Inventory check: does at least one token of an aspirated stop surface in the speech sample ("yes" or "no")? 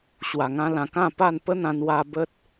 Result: no